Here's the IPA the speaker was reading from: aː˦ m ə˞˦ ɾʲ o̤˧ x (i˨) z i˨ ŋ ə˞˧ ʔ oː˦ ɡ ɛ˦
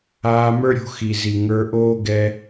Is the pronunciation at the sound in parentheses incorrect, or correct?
correct